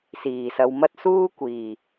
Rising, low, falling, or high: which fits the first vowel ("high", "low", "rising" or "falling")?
low